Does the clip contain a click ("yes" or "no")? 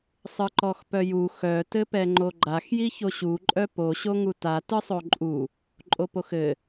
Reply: yes